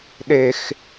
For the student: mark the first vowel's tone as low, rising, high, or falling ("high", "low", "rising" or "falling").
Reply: low